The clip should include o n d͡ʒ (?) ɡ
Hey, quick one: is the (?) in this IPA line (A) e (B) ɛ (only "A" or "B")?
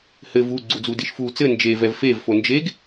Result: A